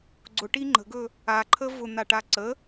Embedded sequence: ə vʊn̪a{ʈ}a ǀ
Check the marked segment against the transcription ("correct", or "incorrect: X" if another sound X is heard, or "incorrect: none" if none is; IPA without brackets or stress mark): correct